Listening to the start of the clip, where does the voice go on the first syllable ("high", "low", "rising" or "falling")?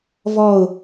falling